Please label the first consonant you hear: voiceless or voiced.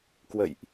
voiceless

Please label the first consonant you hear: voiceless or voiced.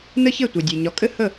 voiced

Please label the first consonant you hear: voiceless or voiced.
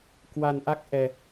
voiceless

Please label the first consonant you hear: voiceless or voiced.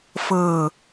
voiceless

